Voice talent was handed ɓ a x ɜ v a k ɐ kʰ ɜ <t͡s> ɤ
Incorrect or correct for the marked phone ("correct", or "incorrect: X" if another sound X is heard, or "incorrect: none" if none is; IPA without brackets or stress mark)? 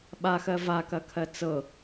correct